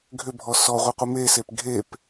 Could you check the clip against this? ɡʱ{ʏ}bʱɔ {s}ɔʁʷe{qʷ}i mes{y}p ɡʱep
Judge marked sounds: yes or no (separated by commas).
yes, yes, yes, no